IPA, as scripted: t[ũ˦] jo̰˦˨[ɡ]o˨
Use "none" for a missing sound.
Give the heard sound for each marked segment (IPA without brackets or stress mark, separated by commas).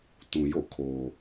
ũ˨, kʰ